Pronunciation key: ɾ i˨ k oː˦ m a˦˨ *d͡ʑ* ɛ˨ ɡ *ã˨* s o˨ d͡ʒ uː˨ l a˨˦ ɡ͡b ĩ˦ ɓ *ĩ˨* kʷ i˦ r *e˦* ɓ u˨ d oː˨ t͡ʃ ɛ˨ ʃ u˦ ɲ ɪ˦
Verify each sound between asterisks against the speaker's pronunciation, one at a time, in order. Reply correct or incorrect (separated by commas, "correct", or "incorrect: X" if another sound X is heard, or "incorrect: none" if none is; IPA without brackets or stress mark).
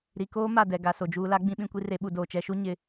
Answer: incorrect: d, incorrect: a˨, incorrect: ĩ˦, correct